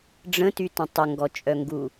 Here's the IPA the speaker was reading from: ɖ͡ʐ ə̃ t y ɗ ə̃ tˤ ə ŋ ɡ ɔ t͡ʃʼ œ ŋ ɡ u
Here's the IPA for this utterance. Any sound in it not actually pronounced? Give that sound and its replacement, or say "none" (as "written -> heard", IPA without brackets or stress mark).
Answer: ɗ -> t